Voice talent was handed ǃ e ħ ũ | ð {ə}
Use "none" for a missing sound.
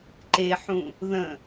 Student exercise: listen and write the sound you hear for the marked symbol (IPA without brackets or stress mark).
ə̃